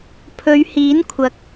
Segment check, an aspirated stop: present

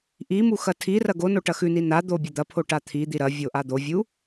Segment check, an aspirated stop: present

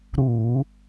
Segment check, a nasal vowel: absent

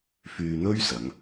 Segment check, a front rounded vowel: present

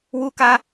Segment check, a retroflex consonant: absent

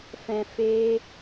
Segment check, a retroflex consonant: absent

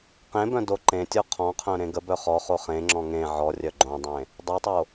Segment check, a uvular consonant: present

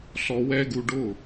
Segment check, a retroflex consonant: present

